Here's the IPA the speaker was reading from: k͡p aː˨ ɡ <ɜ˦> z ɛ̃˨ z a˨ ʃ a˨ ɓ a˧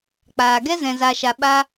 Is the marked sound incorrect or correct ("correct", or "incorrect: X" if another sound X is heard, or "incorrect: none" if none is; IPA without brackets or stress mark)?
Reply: incorrect: ɛ˦